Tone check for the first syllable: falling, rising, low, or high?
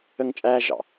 high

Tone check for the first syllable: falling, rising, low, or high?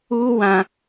high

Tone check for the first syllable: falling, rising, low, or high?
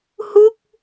falling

